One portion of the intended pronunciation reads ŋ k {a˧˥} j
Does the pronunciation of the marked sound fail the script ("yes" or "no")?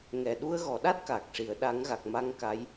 no